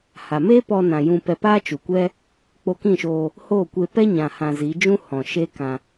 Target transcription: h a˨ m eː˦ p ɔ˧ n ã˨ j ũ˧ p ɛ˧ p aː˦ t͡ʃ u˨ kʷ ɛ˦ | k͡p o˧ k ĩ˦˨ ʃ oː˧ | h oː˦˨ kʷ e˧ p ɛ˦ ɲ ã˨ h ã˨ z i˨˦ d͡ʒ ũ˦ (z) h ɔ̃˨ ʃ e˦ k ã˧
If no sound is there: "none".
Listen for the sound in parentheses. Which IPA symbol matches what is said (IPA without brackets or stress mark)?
none